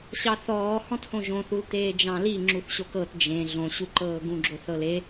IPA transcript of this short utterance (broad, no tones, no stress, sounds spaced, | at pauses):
ɕ ɑ θ ɔː h ɔ̃ t h õ ʒ õ θ u l t̪ eː d͡ʒ ɑ̃ l i ŋ͡ǁ u θ ɕ o k ɤ t d͡ʒ ẽ ɮ õ ɕ u ǃ ɤː ɡ ũ ɡ͡ǁ o θ ɤ l e